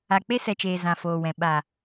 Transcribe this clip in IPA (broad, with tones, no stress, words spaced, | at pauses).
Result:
a˨k͡pe˦sɛ˨t͡ʃeː˨ zã˨foː˨wɛ̃˨ ɓa˨